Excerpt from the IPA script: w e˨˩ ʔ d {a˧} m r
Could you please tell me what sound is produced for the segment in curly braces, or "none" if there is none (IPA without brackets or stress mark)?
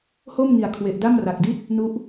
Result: a˥˩